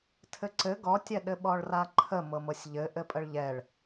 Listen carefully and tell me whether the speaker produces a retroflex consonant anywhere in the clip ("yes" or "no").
yes